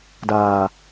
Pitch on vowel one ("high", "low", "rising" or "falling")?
low